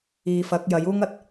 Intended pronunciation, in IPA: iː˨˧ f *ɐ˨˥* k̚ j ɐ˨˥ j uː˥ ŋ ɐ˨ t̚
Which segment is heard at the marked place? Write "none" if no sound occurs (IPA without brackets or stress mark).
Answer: ɐ˨˥